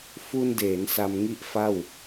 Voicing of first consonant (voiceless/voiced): voiceless